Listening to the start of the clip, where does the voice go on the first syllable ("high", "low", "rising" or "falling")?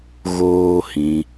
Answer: high